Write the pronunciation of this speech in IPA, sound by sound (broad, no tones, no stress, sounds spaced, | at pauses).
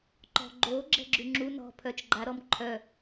ǃ ɔ̤ ɡ͡ǃ o ɡ͡ǁ ɛ̤ ɡ͡ǁ y ŋ͡ǁ u n ɔ̤ pʰ œ t͡ʃ ɡ͡ǃ a ɾ ɔ m ǃʰ œ